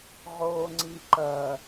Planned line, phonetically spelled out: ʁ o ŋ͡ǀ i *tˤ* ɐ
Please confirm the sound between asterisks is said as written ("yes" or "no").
no